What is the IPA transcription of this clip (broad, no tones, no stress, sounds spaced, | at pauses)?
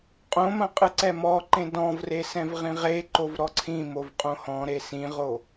qʼ õ m ɐ̃ qʼ ɨ ǀ ɛ m ɔ ǃ ẽ d ɔ̃ v r e s ɛ̃ v ʁ ĩ ʁ e ǃ o v ɾ ɔ ǀʰ ĩ m o v qʼ õ h ɔ̃ ɾ e s ĩ ʁ o